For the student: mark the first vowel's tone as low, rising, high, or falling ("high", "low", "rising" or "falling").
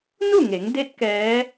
falling